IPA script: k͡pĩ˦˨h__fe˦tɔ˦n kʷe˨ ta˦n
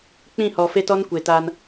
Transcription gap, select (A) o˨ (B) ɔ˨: B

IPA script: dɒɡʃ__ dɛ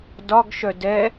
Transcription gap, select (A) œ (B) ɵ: A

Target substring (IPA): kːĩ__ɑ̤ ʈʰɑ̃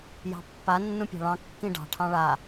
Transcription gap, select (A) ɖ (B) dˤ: A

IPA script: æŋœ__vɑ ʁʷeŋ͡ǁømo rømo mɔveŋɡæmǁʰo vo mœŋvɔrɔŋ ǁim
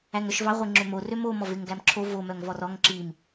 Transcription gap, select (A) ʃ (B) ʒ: A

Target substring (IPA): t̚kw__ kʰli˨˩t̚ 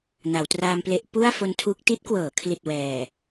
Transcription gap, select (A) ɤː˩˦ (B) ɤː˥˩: A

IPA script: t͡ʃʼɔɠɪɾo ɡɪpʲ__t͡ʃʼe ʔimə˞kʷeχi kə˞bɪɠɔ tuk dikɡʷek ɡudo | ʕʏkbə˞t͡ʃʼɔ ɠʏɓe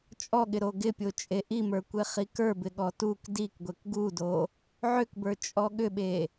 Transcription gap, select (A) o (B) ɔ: A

